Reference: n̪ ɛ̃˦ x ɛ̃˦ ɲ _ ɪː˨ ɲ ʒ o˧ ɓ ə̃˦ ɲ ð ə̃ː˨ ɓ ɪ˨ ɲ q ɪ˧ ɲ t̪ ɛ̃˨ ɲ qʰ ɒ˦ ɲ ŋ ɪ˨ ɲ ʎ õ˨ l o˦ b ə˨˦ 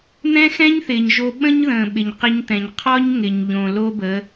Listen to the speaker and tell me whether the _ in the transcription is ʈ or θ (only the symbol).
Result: θ